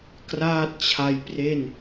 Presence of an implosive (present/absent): absent